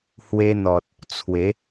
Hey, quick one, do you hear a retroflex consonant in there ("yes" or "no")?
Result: no